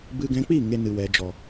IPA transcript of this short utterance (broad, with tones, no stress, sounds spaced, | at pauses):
b ɨ˧ ɡ ɛ̃˧ k͡p i˦˨ ŋ e˧ n ɨ˨ w ɛ˨ d͡ʒ ɔ˨